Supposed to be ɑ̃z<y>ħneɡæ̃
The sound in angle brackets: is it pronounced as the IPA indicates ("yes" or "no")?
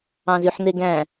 yes